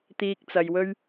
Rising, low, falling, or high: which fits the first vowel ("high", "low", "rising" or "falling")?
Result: low